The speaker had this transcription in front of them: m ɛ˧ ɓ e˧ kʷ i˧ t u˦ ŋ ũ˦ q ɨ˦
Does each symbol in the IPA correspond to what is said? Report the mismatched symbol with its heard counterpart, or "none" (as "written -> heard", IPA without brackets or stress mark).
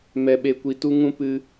q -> p